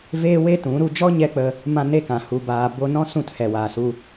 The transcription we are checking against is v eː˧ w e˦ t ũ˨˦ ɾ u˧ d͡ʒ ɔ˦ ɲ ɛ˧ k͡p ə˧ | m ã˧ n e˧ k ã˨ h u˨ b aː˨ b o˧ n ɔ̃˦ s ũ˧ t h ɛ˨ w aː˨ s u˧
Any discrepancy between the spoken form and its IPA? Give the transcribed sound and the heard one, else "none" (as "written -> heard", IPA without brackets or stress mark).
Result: eː˧ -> eː˦